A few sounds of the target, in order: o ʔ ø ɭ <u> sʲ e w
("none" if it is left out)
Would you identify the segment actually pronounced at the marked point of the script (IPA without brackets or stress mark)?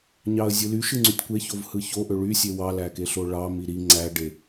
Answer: y